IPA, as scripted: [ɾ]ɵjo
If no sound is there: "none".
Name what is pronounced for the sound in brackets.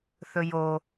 θ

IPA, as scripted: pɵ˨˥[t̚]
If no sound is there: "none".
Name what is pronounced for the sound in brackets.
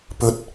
t̚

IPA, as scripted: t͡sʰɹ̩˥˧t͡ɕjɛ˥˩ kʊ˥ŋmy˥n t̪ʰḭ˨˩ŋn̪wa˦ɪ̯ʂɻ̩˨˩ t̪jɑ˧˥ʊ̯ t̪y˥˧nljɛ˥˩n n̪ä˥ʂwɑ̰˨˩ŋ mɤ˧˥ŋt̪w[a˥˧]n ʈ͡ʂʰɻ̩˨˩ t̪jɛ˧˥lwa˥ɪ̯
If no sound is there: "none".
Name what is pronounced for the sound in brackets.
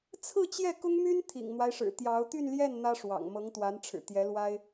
a˧˥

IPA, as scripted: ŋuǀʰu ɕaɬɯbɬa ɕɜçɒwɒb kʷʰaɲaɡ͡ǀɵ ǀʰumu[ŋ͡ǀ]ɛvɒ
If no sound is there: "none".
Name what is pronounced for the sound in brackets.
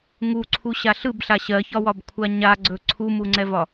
ŋ͡ǀ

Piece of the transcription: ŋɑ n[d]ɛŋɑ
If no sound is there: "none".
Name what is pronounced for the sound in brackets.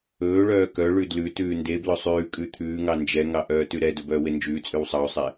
d͡ʒ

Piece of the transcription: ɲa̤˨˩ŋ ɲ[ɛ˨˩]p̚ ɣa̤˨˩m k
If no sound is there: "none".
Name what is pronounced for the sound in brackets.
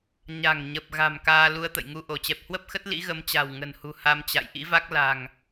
ə˨˩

